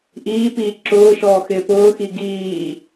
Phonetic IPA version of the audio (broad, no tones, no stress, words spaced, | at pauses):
ʔiːpiː ǁʊːʃɔːxɪː pʊːxi ɡiː